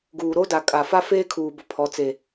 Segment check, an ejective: present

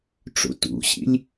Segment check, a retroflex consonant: present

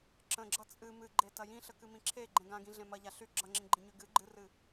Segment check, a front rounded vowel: present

